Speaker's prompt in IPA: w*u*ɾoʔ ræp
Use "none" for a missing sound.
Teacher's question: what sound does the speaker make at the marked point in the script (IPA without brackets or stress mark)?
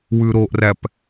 ʉ